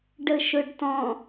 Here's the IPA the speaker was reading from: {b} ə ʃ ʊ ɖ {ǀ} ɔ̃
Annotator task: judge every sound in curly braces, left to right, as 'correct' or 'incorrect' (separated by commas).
incorrect, incorrect